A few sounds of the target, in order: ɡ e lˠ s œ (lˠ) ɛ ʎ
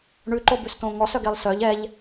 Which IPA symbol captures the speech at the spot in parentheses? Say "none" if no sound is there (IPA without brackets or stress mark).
ʎ